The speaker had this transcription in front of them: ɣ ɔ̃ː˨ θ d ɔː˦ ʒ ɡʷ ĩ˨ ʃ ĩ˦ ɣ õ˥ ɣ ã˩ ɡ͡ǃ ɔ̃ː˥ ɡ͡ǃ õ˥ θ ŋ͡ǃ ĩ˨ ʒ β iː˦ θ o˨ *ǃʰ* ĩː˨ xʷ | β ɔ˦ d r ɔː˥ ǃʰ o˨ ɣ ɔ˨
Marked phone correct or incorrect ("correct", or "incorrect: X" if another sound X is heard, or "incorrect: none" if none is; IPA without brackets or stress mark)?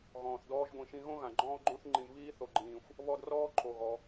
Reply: incorrect: ɡ͡ǃ